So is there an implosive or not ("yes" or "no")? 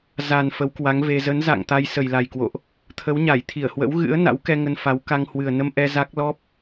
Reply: no